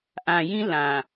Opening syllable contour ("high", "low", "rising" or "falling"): low